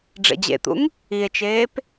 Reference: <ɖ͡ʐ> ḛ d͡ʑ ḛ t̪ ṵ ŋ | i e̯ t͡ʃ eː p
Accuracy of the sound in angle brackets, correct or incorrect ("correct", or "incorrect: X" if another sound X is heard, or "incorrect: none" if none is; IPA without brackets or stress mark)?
correct